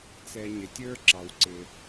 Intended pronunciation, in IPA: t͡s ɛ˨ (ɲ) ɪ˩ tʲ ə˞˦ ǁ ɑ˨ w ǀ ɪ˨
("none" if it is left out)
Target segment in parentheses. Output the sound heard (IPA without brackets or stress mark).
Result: ɲ